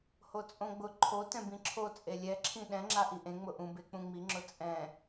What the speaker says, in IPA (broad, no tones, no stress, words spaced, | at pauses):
hot͡sʼõɡ͡bʊ ǃʰo tɛ̃bĩǁʰo t͡sʼelʲɛǁʰĩ ɗɛ̃ŋ͡ǁa ʔiʔẽ ŋ͡mʊʔũ bek͡pũŋ͡miŋ͡ǁʊ t͡sʼɛ̃